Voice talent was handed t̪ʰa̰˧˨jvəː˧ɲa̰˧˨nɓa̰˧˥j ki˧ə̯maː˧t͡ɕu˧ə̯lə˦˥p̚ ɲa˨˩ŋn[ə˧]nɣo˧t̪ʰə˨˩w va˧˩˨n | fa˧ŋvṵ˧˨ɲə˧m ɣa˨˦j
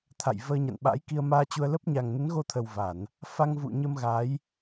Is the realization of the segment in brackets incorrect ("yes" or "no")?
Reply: yes